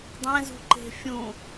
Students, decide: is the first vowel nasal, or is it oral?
nasal